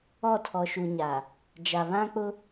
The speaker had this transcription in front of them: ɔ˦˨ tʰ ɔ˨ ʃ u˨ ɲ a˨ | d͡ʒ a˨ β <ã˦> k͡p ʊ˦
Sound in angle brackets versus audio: correct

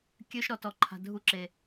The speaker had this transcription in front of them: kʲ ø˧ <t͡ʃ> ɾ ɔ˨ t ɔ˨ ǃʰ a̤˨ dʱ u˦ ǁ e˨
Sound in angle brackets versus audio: incorrect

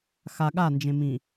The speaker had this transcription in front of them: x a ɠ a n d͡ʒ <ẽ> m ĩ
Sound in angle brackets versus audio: correct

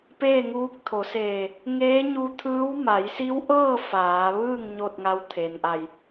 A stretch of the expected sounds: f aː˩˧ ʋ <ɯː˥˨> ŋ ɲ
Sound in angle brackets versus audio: correct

